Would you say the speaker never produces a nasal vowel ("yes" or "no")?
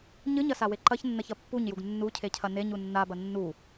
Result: yes